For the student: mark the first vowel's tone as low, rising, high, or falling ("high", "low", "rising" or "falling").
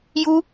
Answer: high